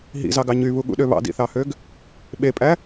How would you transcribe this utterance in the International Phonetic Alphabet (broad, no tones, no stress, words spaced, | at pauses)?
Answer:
ɦḭzɑɡɑ ɲyβuɠṵɗø βɑ̰dḭθɑhøɡ | ɓepʼæ